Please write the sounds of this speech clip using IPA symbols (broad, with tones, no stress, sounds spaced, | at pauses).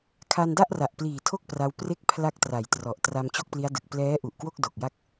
kʰ a˧ n d a˥˩ ʔ r a˨˩ ʔ p l iː˨˩ tʰ o˥˩ k̚ p r a˦˥ w p r e˥˩ k̚ pʰ l a˥˩ k̚ t r a˩˦ j t r ɔ˨˩ ʔ t r a˧ m t͡ɕ o˥˩ k̚ p l i˦˥ a̯ d ɯ˨˩ k̚ p l ɛː˦˥ ʔ u˨˩ ʔ k w o˥˩ k̚ d o˨˩ k̚ j a˥˩ k̚